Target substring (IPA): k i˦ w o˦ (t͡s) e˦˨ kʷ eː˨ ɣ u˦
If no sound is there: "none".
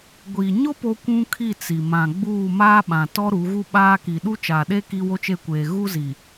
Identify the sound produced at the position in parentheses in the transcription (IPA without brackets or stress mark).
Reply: t͡ʃ